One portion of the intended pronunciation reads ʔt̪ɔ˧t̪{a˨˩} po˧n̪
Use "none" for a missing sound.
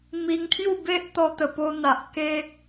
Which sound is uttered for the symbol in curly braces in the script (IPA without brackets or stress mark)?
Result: ə˨˩